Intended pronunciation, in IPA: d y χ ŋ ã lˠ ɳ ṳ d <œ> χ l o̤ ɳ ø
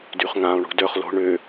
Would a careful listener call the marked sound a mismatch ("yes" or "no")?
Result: no